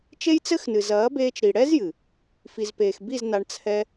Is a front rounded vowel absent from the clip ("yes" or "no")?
yes